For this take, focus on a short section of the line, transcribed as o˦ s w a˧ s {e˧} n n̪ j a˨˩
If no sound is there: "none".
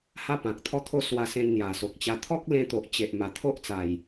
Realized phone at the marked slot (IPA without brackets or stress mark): ẽ˧